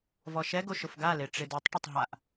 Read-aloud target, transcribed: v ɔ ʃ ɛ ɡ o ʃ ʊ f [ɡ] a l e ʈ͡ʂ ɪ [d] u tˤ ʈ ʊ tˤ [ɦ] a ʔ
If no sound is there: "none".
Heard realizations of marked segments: ɡ, d, ɦ

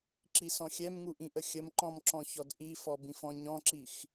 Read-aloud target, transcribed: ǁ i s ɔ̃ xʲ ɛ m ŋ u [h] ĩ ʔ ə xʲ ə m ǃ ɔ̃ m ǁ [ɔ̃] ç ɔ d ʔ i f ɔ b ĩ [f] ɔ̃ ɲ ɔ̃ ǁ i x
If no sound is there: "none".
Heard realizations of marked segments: ʔ, ɔ̃, f

